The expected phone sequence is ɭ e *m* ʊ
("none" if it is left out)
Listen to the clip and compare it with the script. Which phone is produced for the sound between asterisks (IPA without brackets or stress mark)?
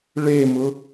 m